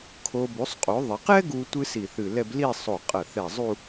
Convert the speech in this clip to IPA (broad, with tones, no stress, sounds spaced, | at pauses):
kʰ o˧ b u˩˧ sˤ qʼ o˩˧ ðˤ ɐ˩˧ q ɛ˥ ɡ u˧ tʷ ɨ˥ s i˧˩ θ ɨ˧˩ l ɛ˥˧ b l i˥˧ sˤ o˧˩ qʼ ɐ˧˩ θ ɛ˧˩ zˤ u˥˧